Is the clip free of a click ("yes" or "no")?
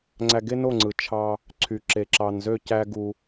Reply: no